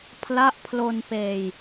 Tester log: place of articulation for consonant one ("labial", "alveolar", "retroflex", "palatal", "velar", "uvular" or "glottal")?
labial